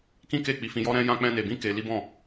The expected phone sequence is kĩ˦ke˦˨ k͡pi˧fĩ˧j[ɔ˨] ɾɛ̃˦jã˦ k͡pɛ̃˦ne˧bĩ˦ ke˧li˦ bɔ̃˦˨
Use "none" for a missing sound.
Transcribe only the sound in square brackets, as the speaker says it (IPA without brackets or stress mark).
ɔ˦